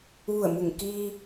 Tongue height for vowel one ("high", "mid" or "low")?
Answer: high